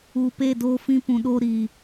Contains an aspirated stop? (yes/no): no